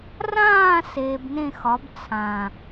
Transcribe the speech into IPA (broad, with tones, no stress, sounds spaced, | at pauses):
r ãː˥˧ s eː˧ b n ẽ˥˧ x ɒ˨˥ b t͡sʰ ã˨˩